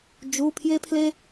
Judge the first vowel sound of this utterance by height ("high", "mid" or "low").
high